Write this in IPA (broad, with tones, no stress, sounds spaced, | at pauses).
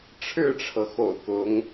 ʈ͡ʂʰ ɻ̩˥˩ ʈ͡ʂʰ ɤ˩ x o̰˨˩ ʊ̯ k ʊ˧˥ ŋ